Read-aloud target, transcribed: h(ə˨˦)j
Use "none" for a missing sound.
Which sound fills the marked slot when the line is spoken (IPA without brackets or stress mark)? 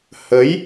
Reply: ə˨˦